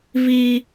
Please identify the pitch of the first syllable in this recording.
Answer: high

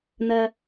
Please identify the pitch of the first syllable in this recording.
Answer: low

